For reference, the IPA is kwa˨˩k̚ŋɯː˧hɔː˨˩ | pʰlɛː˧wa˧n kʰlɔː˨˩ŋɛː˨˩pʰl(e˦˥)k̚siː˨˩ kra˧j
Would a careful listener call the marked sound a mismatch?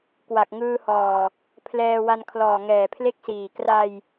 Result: no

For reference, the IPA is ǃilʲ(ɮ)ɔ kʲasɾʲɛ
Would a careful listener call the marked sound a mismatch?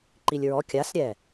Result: yes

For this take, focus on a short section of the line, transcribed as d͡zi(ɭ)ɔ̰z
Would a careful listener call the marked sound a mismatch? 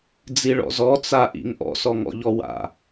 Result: no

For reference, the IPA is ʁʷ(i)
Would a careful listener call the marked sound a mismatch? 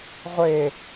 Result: yes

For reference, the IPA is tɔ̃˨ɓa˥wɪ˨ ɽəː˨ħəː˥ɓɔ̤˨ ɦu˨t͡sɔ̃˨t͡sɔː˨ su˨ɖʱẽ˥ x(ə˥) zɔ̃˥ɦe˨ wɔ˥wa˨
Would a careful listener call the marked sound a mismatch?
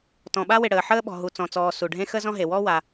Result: no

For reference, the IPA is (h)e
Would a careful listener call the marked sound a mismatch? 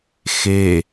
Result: yes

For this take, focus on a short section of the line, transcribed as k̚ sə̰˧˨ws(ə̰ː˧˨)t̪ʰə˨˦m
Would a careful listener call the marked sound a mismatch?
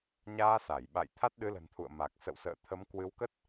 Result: no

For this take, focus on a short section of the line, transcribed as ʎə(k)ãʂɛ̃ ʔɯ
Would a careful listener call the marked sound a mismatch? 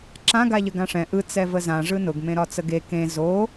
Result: yes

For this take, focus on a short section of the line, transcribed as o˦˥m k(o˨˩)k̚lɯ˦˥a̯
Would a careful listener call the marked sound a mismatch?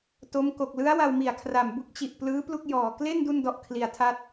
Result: no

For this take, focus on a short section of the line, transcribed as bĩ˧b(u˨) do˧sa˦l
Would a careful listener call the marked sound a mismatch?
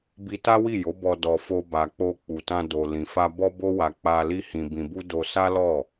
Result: yes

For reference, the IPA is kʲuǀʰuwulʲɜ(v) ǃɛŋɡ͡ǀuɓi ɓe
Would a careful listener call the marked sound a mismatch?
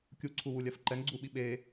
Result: yes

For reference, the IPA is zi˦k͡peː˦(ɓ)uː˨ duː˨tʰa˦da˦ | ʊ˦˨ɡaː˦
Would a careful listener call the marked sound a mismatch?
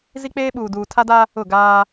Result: no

